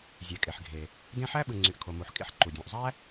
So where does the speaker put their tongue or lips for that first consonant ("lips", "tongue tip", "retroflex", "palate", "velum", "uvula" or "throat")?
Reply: tongue tip